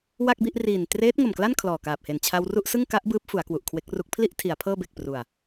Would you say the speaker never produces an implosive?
yes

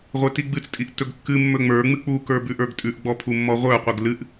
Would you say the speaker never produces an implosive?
yes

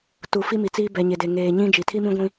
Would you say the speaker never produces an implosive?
yes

